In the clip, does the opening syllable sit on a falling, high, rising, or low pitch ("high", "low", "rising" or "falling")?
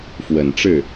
low